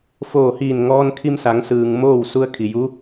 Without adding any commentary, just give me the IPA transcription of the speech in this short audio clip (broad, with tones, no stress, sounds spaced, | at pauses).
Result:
f oː˧˩ h iː˧˩ n ŋ ɔː˧ n kʰ i˧ m s a˩˧ ŋ s ɯː˩ ŋ m oː˥˨ w s u˧ ə̯ kʰ i˩ j u˧˥